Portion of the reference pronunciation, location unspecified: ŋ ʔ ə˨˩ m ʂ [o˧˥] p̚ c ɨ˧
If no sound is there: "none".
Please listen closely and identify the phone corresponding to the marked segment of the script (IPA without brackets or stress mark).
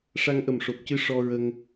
o˨˩